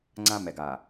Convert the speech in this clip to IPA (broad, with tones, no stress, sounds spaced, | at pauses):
ŋ͡ǀ ã˦ m ɛ˨ ɡ a˨